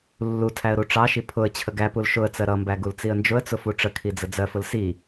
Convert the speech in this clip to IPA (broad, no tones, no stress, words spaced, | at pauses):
lːutʰæə̯ ɾuʈ͡ʂɑʃi pʰʊə̯ t͡ɕʰəɡæpul ʃʊə̯t͡sɜ ɾʌmbæ ɡult͡siə̯nd͡ʒʊə̯t͡sʊ fuʈ͡ʂəkʰi d͡zəd͡zɜfʊl si